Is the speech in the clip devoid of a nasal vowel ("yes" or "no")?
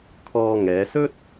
yes